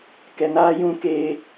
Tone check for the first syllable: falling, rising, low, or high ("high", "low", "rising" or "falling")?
low